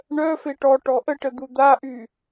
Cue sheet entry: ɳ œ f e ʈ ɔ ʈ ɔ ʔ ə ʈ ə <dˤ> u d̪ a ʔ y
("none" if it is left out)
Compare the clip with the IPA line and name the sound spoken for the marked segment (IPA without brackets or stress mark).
d̪